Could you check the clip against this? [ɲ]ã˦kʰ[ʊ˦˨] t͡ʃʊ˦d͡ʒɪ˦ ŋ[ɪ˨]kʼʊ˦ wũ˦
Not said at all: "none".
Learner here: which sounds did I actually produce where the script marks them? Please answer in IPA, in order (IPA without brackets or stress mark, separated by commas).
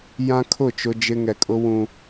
j, ʊ˦˨, ɛ˨